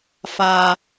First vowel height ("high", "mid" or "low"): low